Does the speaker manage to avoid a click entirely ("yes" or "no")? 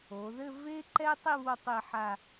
no